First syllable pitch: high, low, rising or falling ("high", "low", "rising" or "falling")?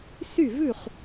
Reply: falling